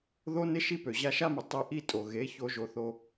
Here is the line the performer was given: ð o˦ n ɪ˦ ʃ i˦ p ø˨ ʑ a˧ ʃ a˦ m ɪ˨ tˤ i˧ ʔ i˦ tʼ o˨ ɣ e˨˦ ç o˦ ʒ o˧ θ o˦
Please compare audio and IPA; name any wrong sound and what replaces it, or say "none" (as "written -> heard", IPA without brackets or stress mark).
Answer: none